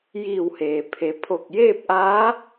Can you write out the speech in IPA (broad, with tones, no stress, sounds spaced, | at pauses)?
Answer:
j iː˧˩ w h eː˩ pʰ e˩˧ pʰ o˧˩ k̚ j eː˥˨ p̚ ʔ aː˧˥